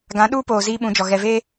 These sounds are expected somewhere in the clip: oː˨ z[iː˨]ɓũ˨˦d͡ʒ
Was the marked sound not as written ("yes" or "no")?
yes